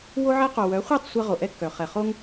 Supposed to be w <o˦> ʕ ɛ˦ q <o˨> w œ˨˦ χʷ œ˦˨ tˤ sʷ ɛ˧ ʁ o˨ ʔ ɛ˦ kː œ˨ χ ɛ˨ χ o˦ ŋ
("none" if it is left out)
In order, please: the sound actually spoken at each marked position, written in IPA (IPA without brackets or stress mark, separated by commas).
o˦, o˨